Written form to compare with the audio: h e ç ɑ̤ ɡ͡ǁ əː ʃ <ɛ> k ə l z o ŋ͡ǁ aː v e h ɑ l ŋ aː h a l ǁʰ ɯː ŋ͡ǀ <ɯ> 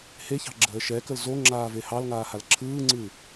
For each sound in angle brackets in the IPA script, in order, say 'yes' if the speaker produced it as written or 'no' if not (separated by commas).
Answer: yes, yes